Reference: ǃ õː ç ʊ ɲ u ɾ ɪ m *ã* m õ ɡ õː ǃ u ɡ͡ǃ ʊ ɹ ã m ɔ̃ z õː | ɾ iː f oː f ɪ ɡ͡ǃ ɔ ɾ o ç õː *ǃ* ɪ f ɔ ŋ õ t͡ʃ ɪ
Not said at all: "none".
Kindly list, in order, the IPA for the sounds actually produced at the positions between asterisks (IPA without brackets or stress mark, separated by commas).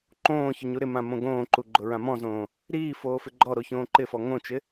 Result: ã, ǃ